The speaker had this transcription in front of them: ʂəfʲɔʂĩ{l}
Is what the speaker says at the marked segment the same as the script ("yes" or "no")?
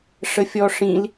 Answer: yes